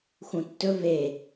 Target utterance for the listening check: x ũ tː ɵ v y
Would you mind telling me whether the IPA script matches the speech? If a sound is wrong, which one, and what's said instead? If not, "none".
y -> e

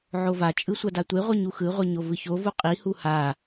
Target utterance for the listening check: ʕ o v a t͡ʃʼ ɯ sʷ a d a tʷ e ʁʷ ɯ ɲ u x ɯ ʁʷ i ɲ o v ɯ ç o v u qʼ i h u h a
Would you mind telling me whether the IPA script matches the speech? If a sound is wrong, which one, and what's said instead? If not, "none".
none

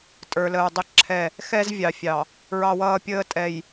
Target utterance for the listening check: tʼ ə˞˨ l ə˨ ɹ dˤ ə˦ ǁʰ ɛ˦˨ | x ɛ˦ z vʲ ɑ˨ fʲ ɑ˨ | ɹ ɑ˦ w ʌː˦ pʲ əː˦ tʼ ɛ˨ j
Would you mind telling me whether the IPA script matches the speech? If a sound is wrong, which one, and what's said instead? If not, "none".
none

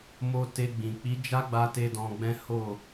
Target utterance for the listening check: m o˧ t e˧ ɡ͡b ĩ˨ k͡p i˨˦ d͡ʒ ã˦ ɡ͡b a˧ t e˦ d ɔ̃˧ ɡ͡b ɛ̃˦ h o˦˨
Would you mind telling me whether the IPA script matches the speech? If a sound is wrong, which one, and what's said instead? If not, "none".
ã˦ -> a˦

